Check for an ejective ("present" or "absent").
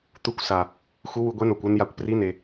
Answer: absent